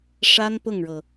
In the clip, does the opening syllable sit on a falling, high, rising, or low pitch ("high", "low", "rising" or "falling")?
high